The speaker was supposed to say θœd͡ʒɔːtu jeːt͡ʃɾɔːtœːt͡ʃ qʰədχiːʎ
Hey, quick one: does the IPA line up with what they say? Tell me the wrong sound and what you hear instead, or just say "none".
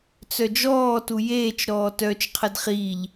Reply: θ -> t͡s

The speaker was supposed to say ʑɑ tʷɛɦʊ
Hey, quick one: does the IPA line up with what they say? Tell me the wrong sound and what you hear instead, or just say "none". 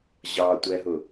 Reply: none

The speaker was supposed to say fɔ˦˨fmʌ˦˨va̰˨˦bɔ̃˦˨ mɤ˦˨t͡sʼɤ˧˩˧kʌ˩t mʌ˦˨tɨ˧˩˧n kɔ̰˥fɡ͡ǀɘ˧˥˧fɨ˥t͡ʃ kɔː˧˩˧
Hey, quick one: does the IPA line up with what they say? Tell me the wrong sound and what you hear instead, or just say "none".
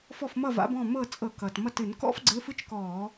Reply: none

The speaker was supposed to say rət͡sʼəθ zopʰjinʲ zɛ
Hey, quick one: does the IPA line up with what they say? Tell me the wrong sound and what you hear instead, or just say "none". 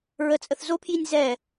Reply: r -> ɹ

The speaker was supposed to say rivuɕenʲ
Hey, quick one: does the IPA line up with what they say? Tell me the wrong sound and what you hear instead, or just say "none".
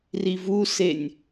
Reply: ɕ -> s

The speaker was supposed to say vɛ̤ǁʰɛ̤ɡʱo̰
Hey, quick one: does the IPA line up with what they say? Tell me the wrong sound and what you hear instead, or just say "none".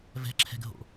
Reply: none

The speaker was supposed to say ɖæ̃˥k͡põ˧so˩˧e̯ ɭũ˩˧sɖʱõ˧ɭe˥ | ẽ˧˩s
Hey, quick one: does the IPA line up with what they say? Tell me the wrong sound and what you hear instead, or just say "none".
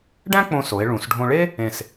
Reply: none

